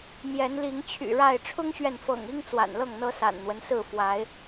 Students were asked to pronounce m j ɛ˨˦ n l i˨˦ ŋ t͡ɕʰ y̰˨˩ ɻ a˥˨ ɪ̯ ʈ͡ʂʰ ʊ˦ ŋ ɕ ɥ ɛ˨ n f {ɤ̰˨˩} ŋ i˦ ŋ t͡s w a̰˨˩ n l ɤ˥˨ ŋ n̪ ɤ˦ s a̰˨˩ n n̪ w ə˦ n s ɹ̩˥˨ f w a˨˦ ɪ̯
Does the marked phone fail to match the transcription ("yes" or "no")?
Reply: no